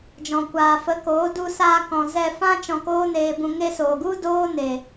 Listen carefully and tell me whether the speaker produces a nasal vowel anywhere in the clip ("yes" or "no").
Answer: yes